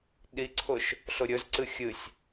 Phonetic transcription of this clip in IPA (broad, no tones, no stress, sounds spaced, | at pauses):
ɗ i ǀʰ ʊ ʃ | ɬ ʊ ɾʲ ɵ z ǀ ɨ xʲ ɨ sʲ